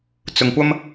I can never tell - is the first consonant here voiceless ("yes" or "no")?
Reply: yes